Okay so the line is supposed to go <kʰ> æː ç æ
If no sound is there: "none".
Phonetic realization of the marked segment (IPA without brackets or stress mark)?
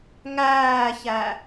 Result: ŋ